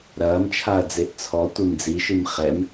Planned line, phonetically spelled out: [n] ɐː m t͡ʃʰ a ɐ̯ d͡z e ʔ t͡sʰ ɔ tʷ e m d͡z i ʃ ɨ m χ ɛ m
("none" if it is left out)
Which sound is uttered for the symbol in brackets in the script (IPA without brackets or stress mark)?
ɾ